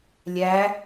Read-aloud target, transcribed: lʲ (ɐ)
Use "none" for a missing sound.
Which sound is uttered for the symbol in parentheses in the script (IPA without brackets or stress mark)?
æ